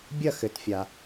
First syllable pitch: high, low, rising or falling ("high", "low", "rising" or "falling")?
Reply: falling